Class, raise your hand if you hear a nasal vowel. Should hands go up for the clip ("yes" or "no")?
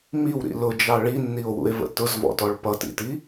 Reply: no